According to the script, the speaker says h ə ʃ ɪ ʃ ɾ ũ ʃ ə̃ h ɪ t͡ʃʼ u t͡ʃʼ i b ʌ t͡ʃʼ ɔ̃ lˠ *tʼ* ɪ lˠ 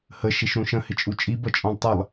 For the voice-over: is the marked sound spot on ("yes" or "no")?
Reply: no